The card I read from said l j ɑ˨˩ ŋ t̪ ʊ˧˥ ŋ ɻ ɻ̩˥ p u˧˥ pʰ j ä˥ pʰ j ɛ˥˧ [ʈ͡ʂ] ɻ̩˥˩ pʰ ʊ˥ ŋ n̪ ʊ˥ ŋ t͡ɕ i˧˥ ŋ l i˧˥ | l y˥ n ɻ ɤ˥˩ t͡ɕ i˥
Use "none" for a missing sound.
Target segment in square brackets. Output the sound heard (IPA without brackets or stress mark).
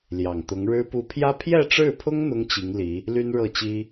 ʈ͡ʂ